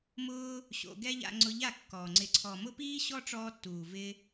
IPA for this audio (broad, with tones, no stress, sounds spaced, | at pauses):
m ʊː˦ | ɕ o̰˧ ɡ ɛ˦ ʎ a̰˧ ŋ͡ǀ ʊ˧ ʎ a˦˨ kː ɔ˨ ŋ͡ǀ ɪ˨ ǀʰ ɔ˨ m ʊ˦ p iː˦ ɕ ɔ˦ ʈ͡ʂ ɔː˧ tː uː˨ v ɪ˦